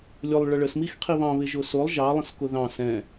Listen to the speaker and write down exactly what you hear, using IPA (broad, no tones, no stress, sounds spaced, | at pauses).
lʲ ʊ lˠ ɭ ʌ ɭ ə s m i x qʰ i β ɑ̃ β ɪ ʒ ʊ s ʊ lˠ ʒ ɑ lˠ ə̃ s k ʊ ð ɑ̃ s ɛ̃